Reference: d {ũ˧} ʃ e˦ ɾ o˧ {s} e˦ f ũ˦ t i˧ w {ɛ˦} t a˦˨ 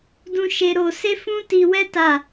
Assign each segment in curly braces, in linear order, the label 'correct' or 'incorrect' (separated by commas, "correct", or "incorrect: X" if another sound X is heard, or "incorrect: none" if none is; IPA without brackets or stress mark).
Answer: correct, correct, correct